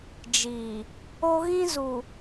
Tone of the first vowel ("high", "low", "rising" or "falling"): low